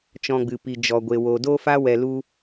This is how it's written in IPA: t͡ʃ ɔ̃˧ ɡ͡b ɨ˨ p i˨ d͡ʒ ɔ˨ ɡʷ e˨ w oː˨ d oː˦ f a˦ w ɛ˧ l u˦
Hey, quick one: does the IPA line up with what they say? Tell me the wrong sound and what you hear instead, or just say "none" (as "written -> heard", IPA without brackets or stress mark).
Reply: none